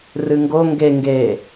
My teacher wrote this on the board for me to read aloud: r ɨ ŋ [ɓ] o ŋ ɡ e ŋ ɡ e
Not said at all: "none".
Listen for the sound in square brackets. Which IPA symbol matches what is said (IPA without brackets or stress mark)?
ɡ